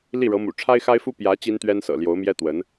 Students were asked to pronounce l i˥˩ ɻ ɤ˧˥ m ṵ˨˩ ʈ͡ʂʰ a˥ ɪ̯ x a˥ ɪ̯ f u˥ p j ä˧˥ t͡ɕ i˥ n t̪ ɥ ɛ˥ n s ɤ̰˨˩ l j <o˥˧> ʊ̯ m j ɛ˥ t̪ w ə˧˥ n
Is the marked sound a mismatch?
yes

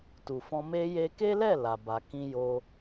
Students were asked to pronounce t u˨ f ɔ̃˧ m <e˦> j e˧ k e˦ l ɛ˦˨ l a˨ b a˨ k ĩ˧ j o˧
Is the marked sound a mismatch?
yes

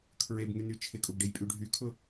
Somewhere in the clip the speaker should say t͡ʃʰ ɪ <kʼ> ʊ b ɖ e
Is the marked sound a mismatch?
no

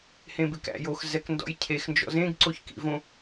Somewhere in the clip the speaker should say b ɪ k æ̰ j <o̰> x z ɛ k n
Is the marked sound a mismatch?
yes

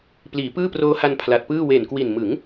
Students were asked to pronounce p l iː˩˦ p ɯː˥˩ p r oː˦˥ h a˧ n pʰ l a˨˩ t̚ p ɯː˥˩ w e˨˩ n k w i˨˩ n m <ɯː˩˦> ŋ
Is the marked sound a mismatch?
yes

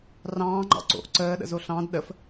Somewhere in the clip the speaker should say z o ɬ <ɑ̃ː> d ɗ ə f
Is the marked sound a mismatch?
yes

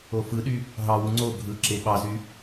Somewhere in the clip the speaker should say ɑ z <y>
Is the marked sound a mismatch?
no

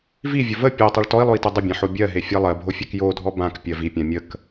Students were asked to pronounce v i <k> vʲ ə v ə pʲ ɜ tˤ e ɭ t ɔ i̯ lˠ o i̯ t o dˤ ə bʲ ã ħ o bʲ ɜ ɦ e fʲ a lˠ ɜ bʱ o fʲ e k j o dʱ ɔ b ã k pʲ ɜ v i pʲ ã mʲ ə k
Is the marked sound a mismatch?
yes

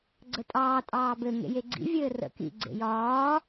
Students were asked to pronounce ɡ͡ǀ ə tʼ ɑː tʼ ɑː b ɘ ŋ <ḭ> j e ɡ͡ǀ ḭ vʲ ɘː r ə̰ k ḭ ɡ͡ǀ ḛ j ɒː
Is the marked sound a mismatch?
yes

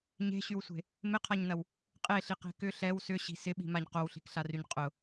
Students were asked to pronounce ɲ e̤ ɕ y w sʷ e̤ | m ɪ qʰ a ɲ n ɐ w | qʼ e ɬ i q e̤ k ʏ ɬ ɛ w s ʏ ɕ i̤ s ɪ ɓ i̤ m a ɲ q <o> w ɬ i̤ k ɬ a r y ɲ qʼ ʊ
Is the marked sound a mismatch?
no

